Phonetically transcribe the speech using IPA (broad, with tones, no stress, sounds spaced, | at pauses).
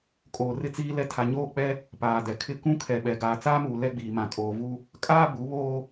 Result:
kʼ oː˨ r ɪ˦ t͡s iː˦ l ɛ˦ tʰ a˨ ɲ oː˦˨ k͡p ɛ˦ | p aː˨ d ɛ˨ kʰ ɪ˦˨ k ũ˦ kʰ ɛ˨ ɓ ɛ˨ ɡ aː˨ t͡s aː˦ m uː˨ l ɛ˦ ɡ͡b iː˨ m ã˨ kʼ oː˨ v u˦ | kʼ aː˦ b u˨˦ β oː˦